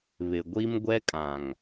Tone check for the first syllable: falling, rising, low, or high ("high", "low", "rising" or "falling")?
low